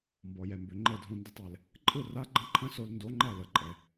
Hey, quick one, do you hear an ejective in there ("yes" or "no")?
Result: yes